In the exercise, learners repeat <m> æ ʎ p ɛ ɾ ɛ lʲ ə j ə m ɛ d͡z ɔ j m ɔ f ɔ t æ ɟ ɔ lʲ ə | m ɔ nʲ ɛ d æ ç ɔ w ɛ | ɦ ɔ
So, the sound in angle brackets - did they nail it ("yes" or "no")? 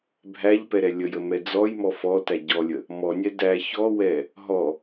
no